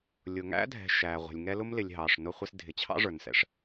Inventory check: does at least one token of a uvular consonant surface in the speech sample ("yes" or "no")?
yes